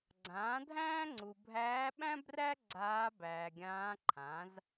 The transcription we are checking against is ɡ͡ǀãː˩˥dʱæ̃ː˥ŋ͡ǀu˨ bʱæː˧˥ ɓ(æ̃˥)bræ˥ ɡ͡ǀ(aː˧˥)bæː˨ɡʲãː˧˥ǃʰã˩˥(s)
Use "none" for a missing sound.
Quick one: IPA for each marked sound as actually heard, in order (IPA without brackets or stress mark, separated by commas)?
æ̃˥, aː˧˥, z